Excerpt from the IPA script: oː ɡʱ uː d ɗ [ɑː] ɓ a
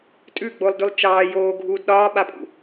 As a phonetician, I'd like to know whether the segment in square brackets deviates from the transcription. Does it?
yes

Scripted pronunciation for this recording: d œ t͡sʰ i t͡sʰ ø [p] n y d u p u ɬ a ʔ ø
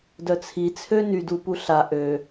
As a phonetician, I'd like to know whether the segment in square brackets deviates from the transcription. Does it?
yes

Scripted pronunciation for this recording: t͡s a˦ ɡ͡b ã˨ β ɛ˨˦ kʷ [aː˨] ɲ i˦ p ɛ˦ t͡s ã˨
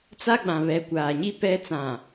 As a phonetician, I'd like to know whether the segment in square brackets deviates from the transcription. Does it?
no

